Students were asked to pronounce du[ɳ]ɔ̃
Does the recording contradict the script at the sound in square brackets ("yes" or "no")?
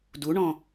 no